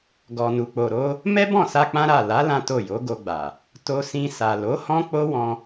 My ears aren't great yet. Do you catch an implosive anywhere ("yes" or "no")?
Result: no